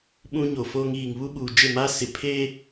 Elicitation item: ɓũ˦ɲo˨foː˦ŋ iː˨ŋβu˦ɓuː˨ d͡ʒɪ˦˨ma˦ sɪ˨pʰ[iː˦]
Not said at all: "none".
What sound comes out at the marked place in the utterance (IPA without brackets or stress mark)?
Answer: eː˦